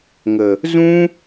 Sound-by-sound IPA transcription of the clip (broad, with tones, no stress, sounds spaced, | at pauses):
ŋ ə˨ | z ũ˦